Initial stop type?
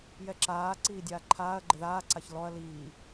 click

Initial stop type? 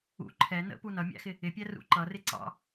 click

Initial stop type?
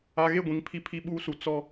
plain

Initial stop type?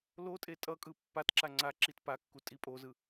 ejective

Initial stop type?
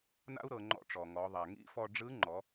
click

